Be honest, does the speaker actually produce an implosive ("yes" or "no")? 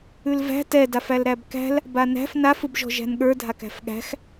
yes